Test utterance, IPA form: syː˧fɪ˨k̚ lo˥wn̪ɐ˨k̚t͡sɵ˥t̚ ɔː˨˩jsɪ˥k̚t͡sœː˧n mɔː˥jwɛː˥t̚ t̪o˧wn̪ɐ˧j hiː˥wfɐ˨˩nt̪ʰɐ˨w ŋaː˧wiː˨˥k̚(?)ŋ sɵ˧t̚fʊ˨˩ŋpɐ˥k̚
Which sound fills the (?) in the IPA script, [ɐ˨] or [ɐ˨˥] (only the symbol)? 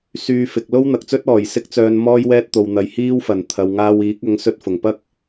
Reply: ɐ˨˥